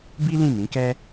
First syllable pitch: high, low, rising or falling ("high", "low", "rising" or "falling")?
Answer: high